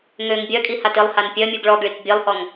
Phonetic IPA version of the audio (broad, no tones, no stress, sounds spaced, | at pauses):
ŋ ø ŋ bʲ œ kʼ i h a t ɪ lˠ h a n pʲ œ mʲ u ɡ ɭ ɔ ɡ ɭ i k bʲ e lˠ h ɔ ŋ